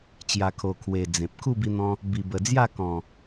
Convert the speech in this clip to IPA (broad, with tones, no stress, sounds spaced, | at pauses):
t͡ɕ j a˨˩ kʰ o˨˩ kʰ w e˨˩ d͡z ẽ˨ p̚ kʰ u˥˧ b i˧ n̪ ɔ̃˧ | b i˨˩ b ə˨˩ d͡z j a˥˧ k ɔ̃˨˩